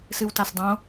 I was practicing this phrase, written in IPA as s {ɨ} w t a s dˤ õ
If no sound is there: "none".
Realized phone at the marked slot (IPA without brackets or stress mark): ɨ